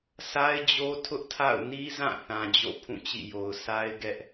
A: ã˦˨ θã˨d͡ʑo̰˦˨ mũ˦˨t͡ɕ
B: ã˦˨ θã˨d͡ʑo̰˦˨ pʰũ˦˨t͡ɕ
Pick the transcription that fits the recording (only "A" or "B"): B